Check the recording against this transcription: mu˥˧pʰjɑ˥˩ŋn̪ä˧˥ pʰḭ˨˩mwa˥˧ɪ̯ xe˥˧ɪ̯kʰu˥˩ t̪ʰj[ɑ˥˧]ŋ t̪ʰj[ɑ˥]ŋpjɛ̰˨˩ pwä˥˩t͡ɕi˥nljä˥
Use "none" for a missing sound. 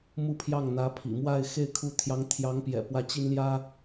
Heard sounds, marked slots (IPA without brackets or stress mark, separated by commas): ɑ˧˥, ɑ˧˥